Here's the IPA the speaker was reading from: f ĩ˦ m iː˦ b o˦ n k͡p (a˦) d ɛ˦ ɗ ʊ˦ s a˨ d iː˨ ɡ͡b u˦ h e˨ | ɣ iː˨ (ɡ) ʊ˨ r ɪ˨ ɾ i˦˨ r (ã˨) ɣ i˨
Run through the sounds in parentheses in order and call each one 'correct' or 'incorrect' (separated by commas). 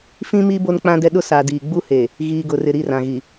incorrect, correct, correct